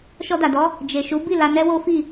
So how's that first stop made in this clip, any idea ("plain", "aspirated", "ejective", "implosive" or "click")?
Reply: plain